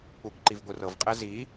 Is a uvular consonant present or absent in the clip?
present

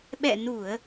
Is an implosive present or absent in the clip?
present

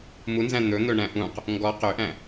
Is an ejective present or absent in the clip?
absent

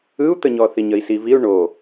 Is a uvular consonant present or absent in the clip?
absent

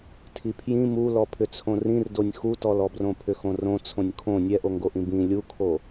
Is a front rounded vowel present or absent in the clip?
present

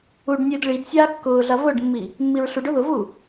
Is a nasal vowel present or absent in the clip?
absent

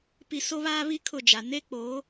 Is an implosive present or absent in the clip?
absent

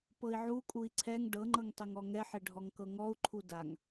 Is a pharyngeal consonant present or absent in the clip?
present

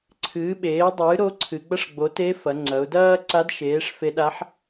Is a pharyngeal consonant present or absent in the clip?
present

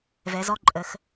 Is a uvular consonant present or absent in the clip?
absent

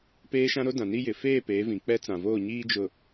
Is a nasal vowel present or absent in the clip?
present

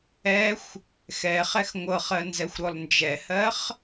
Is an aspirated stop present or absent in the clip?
absent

